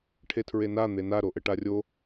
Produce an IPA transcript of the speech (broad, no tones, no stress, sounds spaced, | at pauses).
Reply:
ʈʰ e tʰ ɹ e n a n̪ e n a ɾ o ʔ ɘ ʈ a rʲ o